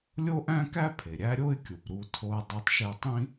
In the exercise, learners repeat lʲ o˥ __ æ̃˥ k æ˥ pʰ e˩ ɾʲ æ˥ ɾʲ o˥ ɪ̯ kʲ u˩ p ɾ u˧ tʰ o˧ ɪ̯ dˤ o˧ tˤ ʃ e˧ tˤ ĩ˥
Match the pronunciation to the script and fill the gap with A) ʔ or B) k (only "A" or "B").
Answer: A